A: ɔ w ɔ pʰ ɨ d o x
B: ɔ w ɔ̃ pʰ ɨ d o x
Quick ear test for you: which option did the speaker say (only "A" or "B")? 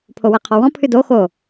B